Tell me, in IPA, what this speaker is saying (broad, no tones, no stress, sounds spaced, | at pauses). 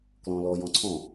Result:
k l ɔ̃ l ɔ j ɔ̃ ǀʰ ɔ̃